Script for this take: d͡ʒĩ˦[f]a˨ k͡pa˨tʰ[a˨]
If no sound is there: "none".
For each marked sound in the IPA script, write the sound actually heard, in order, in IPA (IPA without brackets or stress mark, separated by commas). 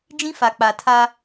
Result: f, a˦